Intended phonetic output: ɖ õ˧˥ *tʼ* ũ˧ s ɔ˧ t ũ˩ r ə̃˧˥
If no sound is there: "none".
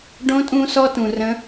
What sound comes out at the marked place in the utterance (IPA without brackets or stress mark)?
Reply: tʼ